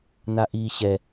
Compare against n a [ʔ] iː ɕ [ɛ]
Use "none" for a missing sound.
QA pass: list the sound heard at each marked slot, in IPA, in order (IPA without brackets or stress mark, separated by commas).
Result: ʔ, ɛ